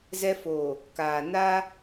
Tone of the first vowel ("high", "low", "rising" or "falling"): high